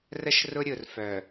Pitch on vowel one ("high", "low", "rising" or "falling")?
high